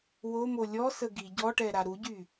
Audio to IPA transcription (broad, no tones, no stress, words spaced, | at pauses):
womo lʲɔsə ɡi ɟɔʈɛɾa ɾuɟy